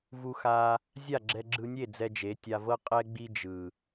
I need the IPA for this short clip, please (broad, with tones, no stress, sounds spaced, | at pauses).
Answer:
v u˧ x a˧ | zʲ a˦˨ ɡ͡ǁ ɛ˧ ɡ͡ǁ ɯ˧ nʲ e˦˨ d͡z ɛ˧ d͡ʒ e˨˦ tʲ a˧ v ɤ˦ qʼ ɛ˦ ɡ͡b i˦ d͡ʒ ɯ˨